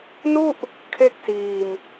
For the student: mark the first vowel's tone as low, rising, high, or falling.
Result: falling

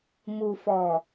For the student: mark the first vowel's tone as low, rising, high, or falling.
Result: low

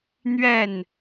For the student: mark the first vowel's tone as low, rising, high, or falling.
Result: falling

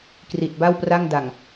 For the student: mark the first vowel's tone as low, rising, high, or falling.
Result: low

